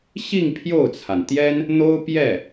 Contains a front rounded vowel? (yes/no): no